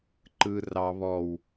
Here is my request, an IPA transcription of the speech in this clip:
ǃɯ rɑ βɔw

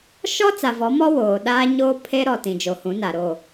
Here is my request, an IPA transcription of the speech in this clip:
ʃɔ˦ t͡sa˨vɔ˨˦mɔ˦ woː˨ ɗaː˦ ɲoː˦pʰe˦ɾɔ˨ tĩ˨d͡ʒo˨hũ˨˦na˨ ɾo˦˨

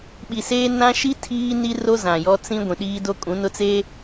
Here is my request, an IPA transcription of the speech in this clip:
ɓi˨seː˦nã˦ ʃi˦ tʰiː˦ni˦ro˦ zã˨jɔ˦ t͡sĩ˦ ɡʷĩ˨ɗiː˦do˦kʼũ˨˦ nʊ˦t͡seː˦

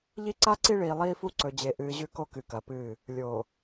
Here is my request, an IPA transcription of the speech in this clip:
ʎi˦ǀa˦ ǀi˦ɭiː˨lˠiː˦fu˦ ǀɵ˨d͡ʑe˨ʔɨː˨ ʑʉ˦ko˦ kɨ˨kɐː˨pɨː˦˨ | lʲoː˨

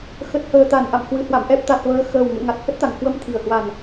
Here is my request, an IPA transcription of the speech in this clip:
xə˨˩t̚həː˨˩t̪a˧˩n ʔa̰˧˨mhwɨ˧˩hwa̰˧˨m ʔɛ˨˩p̚t̪a˨˩t̚ vəː˨˦xəː˨˩w ŋṵ˧˨ə̯ŋa˨˩t̚hə˦˥t̚t̪a˨˩ŋ hwə˧mt̪ʰi˨˩ə̯hwa˨˩n

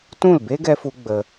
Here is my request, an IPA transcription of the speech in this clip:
tũ˦˨lbe˦ɡɛ˧fu˧ ɡ͡bə˧

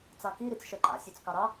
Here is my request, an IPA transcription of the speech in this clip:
t͡sɑki ɾit͡sʃœǃa̰ sʲœt͡skɑɾɑ

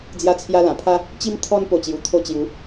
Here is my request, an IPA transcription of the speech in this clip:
d͡zja˧t͡sʰja˧ lã˨˩pʰa˦ | t͡ɕi˧m t̪ʰɔ˧npo˨˩ t͡ɕju˨˩t̪ʰo˧t͡ɕju˨˦

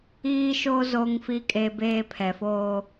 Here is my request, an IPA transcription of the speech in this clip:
iː˦ʃo˦ zo˦ŋ fi˦kʼe˦beː˦ pʰɛ˨foː˦

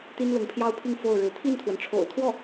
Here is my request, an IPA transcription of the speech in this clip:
t̪i˥nlʊ˧˥ŋpʰjɑ˥ʊ̯pʰi˥˧ŋ fo˥˩ʊ̯ɻɻ̩˧˥ t̪ʰi˥˩nt̪ʰwə˩nʈ͡ʂʰo̰˨˩ʊ̯t̪ʰwɔ˥˩

